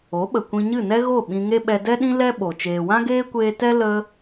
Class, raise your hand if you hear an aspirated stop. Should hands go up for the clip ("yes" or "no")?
no